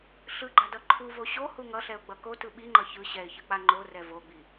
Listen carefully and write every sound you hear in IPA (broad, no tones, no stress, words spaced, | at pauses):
ɬɯɡ͡ǃadʌ ǃʰuvo ɕohu ŋʌɬɛʊ̯ɡ͡bʌ kotɯ ɓiŋ͡ǃʌ çɯ ɕɛɪ̯çɯk͡pa ŋ͡ǃorɛ voɡ͡bi